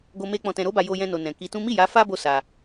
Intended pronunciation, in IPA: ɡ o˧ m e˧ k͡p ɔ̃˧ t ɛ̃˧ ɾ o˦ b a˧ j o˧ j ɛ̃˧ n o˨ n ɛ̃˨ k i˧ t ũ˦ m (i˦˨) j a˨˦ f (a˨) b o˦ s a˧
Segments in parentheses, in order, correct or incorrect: correct, incorrect

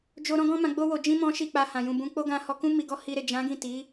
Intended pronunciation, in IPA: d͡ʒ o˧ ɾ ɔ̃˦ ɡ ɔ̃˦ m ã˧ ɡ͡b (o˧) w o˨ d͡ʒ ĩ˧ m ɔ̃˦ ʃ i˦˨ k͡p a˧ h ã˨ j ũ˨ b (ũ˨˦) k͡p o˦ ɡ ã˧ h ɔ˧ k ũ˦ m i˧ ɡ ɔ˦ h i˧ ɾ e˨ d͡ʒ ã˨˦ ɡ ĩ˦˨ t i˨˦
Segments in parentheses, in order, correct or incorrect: correct, correct

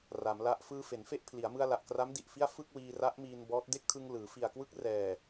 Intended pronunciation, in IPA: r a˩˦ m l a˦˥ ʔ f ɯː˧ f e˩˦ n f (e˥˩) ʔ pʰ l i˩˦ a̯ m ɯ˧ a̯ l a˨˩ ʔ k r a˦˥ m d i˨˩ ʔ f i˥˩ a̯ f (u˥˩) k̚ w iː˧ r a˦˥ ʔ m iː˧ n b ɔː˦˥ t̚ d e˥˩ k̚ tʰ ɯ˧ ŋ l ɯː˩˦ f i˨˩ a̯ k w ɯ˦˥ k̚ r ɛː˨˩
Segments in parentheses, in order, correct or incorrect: correct, incorrect

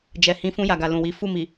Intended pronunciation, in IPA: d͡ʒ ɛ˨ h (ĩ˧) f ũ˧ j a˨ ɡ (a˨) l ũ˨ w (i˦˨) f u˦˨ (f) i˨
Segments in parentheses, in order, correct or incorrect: incorrect, correct, incorrect, incorrect

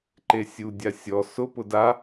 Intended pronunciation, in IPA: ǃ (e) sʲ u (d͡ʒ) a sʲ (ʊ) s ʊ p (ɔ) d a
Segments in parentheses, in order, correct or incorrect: correct, incorrect, incorrect, incorrect

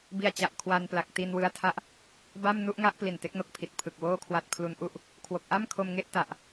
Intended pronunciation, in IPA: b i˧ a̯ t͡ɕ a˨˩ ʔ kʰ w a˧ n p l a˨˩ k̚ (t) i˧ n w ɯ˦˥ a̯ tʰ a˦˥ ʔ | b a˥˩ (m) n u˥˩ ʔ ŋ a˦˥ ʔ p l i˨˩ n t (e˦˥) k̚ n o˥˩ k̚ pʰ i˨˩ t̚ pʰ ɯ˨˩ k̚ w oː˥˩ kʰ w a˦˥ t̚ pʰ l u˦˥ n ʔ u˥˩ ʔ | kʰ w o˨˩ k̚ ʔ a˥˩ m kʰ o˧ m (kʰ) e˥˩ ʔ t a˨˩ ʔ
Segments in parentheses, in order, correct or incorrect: correct, correct, correct, incorrect

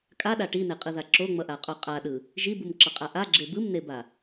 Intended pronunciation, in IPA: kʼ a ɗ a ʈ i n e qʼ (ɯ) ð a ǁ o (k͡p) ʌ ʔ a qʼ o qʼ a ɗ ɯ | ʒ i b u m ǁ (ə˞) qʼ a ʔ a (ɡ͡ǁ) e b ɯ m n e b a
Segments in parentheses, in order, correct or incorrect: correct, incorrect, incorrect, correct

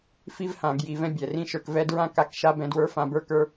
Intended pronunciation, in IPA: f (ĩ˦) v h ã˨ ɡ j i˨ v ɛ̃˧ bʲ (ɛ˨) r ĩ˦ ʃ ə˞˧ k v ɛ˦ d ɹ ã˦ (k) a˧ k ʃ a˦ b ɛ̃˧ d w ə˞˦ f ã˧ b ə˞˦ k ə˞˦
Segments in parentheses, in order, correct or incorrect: incorrect, correct, correct

